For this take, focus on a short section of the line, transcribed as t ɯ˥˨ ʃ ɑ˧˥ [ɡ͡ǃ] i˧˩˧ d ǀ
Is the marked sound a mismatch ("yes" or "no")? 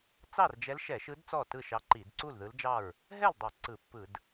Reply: yes